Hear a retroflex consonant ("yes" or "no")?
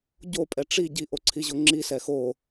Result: yes